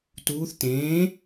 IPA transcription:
t uː θ t ẽː

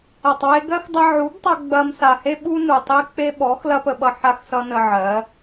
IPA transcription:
ɐ˨ tˤ w e˧ ɡ ɜ˦ x dˤ ʌ˧ ʕ u˨˦ b tˤ ʌ˧ ɡ͡b ɐ˧ m s a˨ h e˦ ɓ u˦ n u˨ tˤ e˦ k͡p e˦ ɓ ɔ˨˦ x l ɐ˦ p ə˧ ɓ ʌ˧ ħ a˦ x s ʌ˦ n ə˧ ʕ ɜ˨˦

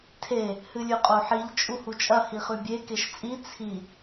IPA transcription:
tʰ e | h ɨ lʲ ʉ qʼ o ħ i ʎ t͡ʃʼ u h u t͡ʃʼ ɐ h i χ ʉ bʲ e k e ʃ t͡sʼ i t͡sʰ i

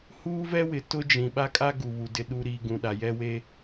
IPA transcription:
h uː˦ v ɛ˦ w ɪ˨ t ʊ˦ d͡ʒ ĩ˨ ɓ a˦ kʼ a˦ ɡ u˨ β u˨ d ɪ˨ ɗ u˨ ɾ i˨ ɡ ũ˨ ɗ a˨ j ɛ˦ w e˦

